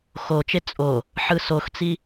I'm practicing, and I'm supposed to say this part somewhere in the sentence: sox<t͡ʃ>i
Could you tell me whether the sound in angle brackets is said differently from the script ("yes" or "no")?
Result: yes